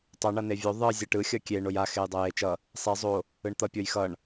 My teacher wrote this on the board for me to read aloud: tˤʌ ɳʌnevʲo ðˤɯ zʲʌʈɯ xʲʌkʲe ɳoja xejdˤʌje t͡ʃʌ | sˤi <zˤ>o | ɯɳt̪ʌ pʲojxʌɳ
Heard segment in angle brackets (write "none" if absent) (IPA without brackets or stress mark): zˤ